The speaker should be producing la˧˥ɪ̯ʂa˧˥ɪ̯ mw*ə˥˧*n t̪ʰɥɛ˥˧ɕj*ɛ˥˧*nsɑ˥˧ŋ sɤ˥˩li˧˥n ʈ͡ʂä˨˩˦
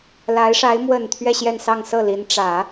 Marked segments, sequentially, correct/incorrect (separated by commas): incorrect, correct